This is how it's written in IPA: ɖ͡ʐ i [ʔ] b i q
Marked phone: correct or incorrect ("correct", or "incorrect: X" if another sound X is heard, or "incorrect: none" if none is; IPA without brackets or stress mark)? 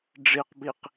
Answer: incorrect: q